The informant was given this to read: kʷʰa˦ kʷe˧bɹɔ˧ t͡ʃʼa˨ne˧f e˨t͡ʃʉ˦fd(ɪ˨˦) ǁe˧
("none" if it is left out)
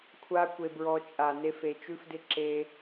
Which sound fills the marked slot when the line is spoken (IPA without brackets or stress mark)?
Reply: ɪ˦